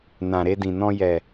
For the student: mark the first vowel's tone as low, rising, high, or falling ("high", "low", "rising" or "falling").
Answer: low